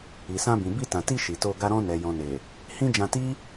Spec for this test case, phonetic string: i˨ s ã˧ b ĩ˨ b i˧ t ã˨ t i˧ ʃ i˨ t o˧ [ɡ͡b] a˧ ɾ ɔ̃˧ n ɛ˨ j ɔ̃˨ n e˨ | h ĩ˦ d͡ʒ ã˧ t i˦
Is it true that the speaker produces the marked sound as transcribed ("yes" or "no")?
no